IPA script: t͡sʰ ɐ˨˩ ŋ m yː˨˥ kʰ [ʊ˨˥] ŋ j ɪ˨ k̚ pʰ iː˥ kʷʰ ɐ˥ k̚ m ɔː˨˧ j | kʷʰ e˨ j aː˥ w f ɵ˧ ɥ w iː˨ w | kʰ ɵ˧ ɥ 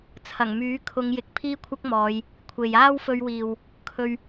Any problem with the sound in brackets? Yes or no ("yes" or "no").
yes